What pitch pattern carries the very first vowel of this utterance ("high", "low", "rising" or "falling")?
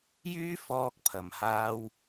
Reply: high